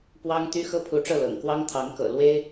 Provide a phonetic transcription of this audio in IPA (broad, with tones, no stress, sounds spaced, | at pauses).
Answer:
p w ɑ˥ ŋ t̪ y˥ x ɤ˥ pʰ u˧˥ ʈ͡ʂ ɤ˥˩ l ɤ̰˨˩ ŋ k w ɑ˥ ŋ t̪ʰ ɑ˧˥ ŋ k ɤ̰˨˩ l w e˥ ɪ̯